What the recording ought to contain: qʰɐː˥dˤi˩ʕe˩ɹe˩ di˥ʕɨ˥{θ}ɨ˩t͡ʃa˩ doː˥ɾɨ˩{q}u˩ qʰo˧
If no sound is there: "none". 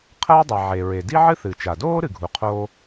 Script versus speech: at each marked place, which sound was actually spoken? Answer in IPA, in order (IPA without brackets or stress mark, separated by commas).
θ, ɡʱ